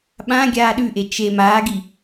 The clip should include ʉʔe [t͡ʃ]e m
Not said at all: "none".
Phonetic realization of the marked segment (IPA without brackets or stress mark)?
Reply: t͡ʃ